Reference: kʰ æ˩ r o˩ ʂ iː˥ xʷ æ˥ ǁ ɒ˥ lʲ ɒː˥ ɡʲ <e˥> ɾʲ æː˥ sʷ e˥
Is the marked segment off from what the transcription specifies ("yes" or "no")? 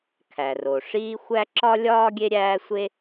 no